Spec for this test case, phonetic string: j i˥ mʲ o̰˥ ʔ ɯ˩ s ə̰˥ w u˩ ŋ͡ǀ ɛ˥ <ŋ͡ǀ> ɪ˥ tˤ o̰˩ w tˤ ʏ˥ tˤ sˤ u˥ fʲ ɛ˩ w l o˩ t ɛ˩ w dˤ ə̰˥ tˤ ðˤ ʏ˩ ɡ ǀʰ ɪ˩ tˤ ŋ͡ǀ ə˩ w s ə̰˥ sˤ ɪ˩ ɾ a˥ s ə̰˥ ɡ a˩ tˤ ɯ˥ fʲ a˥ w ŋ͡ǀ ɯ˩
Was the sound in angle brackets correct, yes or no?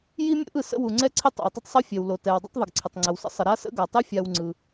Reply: no